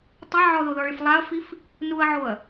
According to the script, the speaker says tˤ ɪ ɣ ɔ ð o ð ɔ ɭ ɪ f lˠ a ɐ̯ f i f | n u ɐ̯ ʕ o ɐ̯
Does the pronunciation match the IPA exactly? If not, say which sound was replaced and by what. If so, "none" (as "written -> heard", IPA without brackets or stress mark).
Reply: ɣ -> ʕ